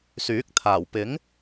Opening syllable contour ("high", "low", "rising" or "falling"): rising